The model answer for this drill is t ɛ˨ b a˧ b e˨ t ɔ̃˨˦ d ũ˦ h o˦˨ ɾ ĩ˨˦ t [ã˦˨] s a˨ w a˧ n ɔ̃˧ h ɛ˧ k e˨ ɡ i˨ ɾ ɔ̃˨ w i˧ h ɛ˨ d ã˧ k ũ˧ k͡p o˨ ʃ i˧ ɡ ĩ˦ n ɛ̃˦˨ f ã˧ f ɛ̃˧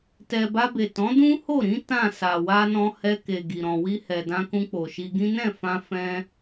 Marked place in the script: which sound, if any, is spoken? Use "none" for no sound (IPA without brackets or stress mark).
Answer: ã˦˨